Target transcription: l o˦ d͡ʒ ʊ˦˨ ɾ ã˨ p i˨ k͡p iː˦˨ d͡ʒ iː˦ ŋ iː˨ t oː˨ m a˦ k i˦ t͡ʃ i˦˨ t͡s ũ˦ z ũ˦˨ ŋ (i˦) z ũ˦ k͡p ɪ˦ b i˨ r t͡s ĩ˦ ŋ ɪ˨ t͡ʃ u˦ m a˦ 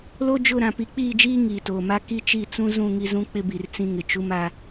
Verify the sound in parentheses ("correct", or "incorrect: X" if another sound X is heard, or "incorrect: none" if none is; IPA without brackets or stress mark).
correct